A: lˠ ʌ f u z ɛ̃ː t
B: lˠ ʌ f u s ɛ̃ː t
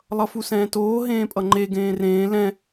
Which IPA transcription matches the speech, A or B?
B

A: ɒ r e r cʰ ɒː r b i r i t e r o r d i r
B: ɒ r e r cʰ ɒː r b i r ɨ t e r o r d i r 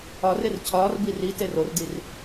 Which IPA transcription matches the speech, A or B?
A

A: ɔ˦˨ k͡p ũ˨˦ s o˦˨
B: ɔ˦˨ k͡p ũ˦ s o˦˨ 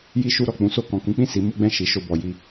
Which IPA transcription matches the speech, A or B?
A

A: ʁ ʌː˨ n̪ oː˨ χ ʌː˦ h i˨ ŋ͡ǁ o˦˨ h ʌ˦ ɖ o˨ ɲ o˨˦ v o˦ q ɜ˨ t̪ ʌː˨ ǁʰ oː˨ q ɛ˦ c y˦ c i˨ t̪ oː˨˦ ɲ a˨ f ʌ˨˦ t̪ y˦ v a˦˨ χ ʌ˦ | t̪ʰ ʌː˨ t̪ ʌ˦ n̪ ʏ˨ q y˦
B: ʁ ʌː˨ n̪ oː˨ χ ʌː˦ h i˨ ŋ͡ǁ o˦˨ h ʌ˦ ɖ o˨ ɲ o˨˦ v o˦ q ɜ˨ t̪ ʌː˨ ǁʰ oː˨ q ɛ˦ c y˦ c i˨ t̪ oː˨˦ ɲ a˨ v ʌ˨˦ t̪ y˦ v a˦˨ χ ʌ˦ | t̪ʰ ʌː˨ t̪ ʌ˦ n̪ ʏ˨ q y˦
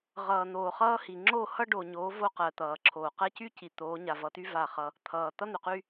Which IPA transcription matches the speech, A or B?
B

